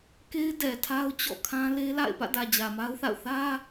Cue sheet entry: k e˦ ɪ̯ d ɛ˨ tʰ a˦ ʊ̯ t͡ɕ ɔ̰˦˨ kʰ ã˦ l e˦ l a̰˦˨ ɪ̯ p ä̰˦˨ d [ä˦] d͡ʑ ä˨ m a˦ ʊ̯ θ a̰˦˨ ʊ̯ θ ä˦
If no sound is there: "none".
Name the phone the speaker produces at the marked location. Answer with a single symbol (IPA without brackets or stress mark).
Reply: ä˨